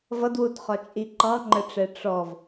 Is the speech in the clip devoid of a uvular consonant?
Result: no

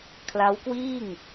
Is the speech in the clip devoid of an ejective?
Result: yes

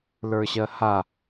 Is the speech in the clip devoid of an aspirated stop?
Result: yes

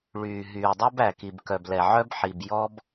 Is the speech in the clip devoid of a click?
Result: yes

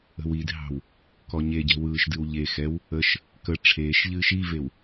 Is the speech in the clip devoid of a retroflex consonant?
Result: no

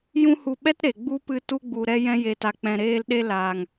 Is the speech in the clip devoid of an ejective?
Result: yes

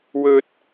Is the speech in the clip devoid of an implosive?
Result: yes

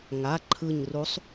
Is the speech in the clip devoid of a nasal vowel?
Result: yes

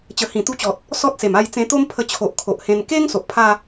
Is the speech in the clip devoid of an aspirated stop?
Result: no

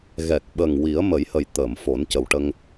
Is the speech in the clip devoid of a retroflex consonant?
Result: no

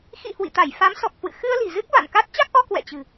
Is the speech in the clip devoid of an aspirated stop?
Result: yes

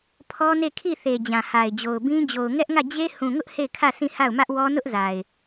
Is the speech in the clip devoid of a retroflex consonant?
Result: yes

